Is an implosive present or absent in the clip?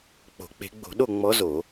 present